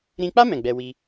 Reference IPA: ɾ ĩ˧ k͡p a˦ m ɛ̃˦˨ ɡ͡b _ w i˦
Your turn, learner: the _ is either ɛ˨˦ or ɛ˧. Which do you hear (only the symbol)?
ɛ˧